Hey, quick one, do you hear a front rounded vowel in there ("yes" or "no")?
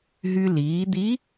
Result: yes